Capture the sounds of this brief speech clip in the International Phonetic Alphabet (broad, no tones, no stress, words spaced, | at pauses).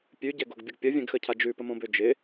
pʲʉɟɛɡoɡbʲəɡ pʲəvʲɛ̃ɡxəcʰa d͡ʒʉpəmõbø d͡ʒɪ